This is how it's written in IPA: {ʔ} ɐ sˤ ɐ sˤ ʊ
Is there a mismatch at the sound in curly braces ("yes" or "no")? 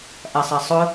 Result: no